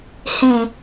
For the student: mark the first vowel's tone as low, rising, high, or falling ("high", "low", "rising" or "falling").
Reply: low